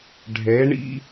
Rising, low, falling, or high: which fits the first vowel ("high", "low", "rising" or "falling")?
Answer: rising